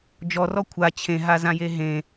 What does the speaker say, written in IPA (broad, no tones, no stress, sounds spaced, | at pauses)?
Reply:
d͡ʒ ɔ r ɔ kʷʰ a t͡ɕʰ ẽ ɦ a z ã j e ɦ ẽ